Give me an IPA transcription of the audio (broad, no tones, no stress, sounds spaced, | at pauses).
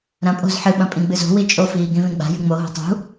ɾ ɐ̃ pʼ o̤ z ħ ɨ ɓ ɐ̃ pʼ ĩ ɡ͡b ɨ z o̤ w i t͡ʃʼ o f iː ɡ ĩ v ĩ ɡ͡b a̤ j ɨ ŋ͡m o ɦ o̤ tˤ ṳ